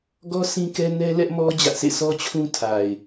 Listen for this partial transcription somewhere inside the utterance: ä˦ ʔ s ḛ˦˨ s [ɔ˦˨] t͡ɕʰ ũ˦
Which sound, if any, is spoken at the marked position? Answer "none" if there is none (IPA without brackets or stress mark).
ɔ˦